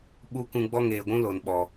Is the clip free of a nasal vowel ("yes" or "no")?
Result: no